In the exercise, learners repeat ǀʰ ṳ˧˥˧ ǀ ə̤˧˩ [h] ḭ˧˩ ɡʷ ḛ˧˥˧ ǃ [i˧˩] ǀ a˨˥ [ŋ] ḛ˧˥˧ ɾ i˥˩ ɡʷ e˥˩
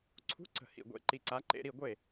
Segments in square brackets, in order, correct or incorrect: correct, correct, incorrect: ǃ

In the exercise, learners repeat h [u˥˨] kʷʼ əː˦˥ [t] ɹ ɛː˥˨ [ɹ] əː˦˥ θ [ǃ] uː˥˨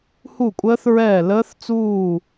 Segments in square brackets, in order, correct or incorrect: correct, incorrect: θ, incorrect: l, incorrect: t͡s

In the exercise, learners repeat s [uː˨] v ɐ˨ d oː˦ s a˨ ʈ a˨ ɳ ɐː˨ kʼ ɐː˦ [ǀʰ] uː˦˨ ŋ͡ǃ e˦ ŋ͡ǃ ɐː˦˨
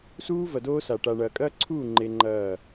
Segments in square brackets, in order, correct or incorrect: incorrect: uː˦, correct

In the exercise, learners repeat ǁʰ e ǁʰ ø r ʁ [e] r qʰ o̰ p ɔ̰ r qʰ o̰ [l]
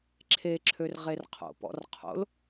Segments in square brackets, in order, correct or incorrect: correct, correct

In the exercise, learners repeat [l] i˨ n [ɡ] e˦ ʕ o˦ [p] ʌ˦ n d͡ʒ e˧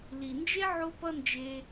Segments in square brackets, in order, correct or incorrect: correct, incorrect: d͡ʒ, correct

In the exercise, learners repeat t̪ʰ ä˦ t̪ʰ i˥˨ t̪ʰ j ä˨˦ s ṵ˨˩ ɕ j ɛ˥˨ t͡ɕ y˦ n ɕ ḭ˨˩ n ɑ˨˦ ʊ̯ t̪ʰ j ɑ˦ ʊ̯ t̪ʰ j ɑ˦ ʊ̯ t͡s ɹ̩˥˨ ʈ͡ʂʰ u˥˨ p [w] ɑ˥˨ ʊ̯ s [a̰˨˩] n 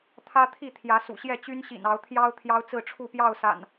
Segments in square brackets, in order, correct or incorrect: incorrect: j, correct

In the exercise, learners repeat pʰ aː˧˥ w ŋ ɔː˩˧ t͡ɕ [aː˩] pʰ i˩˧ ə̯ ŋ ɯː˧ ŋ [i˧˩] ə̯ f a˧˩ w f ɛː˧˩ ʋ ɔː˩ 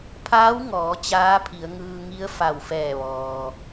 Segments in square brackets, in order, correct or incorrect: incorrect: aː˧˥, incorrect: i˧˥

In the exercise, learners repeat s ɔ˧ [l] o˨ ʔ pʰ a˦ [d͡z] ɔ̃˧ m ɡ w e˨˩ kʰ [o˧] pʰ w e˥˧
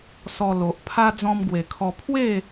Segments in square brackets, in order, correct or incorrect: correct, correct, incorrect: ɔ˧

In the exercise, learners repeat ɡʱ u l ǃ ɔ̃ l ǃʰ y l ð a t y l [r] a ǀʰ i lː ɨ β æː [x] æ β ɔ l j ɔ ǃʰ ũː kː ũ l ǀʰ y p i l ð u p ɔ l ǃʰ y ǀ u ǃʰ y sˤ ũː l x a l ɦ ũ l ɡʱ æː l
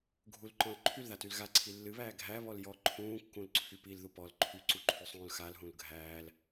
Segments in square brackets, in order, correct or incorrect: incorrect: ɣ, incorrect: ɡʱ

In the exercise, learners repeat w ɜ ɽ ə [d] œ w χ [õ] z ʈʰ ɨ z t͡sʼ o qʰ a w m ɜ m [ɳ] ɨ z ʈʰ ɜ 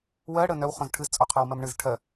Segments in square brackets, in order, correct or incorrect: incorrect: n, correct, correct

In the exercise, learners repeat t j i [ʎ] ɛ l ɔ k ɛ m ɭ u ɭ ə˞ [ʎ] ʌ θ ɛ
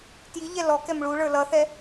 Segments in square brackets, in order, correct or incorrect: correct, incorrect: l

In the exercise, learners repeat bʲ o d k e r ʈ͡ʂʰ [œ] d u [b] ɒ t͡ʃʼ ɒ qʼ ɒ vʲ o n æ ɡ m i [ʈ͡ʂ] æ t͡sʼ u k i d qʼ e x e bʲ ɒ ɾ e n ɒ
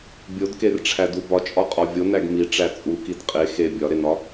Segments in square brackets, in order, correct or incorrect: incorrect: æ, correct, correct

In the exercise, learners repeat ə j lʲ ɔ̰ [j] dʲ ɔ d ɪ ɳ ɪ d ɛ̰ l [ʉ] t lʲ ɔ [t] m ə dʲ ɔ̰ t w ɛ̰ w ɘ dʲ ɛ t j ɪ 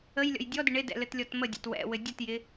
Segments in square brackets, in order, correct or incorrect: correct, incorrect: ɘ, correct

